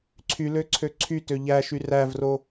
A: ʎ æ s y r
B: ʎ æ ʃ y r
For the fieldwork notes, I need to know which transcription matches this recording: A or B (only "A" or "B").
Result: B